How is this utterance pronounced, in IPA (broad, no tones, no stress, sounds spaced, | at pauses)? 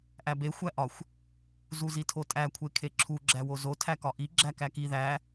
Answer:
ʔ æ b e xʷ æ ʔ ɒ xʷ | z u z i tʰ o tʼ æ kʷʰ e kʰ e ǁʰ u ɡ͡ǁ æ w o z o tʰ æ k ɒ ʔ i ɡ͡ǁ æ k æ k i ð æ